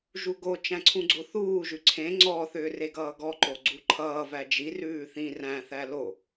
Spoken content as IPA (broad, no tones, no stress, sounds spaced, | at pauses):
ʒ u ɡ o t͡ʃ æ̃ ǀʰ ũ ɡ͡ǀ o θ uː ʒ ʉ ǀʰ ẽ ŋ͡ǀ ɔ θ ʏː r e ɡ ʌː ɡ ɔ ǃ o ɡ͡ǀ u ǃʰ ʌː v æ d͡ʒ i r ʉː θ ĩ r æ̃ θ æ l o